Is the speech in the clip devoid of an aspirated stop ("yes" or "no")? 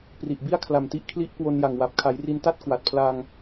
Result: no